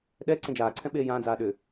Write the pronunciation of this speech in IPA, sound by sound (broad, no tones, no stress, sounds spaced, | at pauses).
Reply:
ɗ ɛ ǀ ẽ d͡ʒ aː ǀʰ ɛ̃ ɓ eː j ãː d͡z aː ɗ ʏ